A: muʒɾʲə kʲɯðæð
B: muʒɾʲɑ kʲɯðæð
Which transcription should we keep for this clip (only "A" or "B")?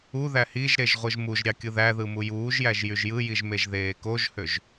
B